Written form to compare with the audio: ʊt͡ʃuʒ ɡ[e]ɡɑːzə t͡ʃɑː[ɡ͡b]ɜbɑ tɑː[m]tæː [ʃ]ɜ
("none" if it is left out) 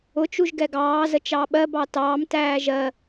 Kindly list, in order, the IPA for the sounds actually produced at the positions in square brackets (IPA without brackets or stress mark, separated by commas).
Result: ɛ, ɓ, m, ʒ